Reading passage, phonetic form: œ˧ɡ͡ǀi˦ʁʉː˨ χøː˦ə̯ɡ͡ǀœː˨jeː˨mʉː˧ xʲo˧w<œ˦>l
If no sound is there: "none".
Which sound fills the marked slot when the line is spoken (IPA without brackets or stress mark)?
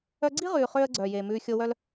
œ˦